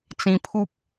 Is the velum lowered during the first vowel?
yes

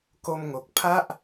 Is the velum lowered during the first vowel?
no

